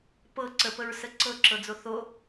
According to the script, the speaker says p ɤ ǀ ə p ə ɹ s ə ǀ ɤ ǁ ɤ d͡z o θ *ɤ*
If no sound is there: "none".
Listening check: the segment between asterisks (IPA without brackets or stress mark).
o